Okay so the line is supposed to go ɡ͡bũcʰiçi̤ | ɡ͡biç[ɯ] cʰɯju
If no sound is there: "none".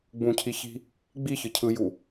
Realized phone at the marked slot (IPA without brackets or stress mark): ɯ